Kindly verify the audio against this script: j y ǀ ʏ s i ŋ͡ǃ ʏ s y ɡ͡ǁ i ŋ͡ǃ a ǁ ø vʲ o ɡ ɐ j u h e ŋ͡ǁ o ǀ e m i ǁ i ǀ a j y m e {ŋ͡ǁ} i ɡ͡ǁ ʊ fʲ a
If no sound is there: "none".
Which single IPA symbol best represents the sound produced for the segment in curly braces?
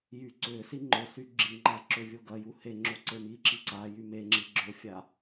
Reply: ŋ͡ǁ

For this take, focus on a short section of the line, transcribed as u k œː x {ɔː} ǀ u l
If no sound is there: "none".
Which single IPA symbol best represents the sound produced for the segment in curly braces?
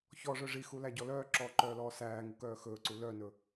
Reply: ɵː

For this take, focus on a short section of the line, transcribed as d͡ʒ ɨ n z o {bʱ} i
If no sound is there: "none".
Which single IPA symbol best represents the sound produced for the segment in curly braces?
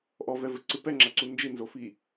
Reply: f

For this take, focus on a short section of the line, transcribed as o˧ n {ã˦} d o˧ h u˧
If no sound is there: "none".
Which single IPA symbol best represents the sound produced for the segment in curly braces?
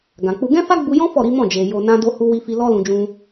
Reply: ã˦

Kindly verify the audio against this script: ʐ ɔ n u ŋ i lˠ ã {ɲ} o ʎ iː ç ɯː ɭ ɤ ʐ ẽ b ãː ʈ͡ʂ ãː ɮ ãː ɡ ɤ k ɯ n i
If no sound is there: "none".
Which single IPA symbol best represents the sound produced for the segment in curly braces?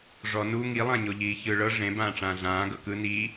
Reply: ɲ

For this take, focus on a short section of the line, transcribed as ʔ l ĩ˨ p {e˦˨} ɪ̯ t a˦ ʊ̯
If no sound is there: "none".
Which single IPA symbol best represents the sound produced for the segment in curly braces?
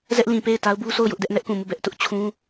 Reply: e˦˨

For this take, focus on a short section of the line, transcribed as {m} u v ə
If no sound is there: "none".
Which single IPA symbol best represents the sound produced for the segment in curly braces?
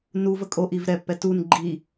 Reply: n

